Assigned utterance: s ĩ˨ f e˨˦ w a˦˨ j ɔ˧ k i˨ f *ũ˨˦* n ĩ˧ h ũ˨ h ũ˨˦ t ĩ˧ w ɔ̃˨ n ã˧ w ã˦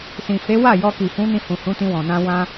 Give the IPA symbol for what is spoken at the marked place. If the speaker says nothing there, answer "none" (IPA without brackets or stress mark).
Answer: ũ˨˦